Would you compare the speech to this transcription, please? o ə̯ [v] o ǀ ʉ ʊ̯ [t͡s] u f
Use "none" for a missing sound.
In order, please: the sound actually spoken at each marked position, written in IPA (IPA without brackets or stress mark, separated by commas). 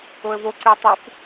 v, tˤ